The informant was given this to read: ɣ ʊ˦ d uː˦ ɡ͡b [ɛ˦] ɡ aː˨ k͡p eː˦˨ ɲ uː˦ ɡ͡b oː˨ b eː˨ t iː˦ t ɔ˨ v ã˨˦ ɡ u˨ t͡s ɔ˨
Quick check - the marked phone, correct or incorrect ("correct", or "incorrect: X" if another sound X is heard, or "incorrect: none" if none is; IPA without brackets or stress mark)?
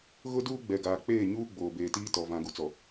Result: incorrect: ɛ˨